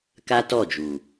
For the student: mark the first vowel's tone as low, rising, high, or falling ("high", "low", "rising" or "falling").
high